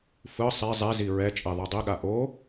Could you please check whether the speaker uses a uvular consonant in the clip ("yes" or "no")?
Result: no